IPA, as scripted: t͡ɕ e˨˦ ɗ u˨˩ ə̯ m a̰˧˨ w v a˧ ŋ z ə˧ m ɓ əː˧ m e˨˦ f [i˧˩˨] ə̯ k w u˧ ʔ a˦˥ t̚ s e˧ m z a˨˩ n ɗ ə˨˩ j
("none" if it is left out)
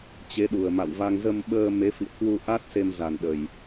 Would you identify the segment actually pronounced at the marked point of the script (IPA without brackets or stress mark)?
ḭ˧˨